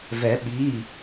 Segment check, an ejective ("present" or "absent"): absent